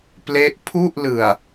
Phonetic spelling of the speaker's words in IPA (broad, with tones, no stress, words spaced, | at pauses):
ple˦˥ʔ pʰu˥˩ʔlɯ˨˩a̯